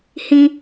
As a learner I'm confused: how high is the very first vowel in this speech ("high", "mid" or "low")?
high